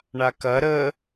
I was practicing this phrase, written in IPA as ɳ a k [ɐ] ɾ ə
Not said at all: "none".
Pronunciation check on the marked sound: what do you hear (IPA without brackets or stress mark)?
ɐ